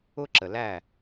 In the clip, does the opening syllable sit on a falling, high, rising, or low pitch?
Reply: high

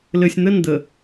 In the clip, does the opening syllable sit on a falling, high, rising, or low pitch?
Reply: low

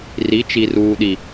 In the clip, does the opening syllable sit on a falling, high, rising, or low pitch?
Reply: rising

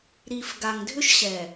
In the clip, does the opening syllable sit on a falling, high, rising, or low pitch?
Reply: low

